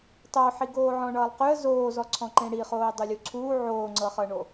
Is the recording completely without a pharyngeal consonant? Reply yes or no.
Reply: no